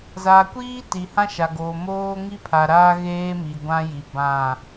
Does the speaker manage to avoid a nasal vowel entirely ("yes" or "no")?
no